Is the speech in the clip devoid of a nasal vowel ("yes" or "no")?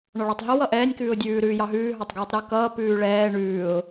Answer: yes